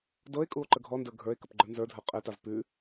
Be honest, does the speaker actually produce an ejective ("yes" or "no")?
yes